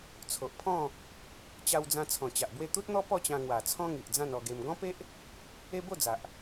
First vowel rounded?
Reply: yes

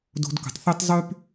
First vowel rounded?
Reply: yes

